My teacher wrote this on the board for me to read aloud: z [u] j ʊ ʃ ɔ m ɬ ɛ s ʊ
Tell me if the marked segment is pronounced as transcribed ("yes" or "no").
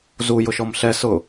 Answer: yes